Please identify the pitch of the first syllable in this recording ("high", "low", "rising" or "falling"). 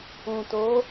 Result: low